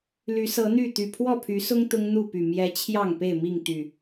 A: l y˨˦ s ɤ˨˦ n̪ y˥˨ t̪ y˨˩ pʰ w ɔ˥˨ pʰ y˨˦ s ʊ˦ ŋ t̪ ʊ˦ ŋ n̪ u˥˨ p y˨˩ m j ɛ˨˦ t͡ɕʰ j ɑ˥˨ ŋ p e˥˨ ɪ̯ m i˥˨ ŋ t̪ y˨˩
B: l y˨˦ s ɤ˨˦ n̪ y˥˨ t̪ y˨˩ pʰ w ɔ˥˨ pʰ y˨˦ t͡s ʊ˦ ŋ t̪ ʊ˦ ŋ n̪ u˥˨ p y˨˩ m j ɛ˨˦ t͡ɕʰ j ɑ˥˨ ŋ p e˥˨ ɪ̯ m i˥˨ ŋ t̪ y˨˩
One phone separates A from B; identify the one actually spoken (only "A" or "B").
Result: A